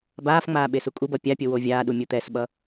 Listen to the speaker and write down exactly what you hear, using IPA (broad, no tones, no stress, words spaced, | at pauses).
baːfŋ͡maː ɓesukʼubʌ pʲapʲo wovʲaːɗu mʲut̪ɛsɓʌ